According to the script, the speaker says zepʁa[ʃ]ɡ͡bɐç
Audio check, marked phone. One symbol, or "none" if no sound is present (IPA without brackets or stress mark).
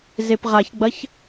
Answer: ç